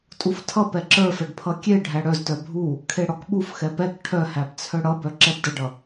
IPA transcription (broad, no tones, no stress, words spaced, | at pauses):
tʼuftʰʌ pɛǁə˞fɛɖ pʰʌkʲe ɖʱæɽœztœ bʱu | kʰeɽɔkɓuf xɛpɛk ʈʰœhæbt͡sʰœ ɽʌbœ ǁɛbdəɖʌ